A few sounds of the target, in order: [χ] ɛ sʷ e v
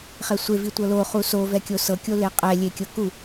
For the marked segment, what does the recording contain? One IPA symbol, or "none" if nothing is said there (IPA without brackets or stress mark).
χ